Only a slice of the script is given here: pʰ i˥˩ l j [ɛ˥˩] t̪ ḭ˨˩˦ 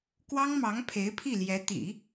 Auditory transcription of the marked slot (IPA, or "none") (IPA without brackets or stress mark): ɛ˧˥